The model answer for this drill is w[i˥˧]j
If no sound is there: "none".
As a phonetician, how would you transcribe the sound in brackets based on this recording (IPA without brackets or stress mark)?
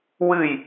ɨ˥˧